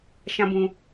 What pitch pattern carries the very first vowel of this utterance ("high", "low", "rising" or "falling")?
high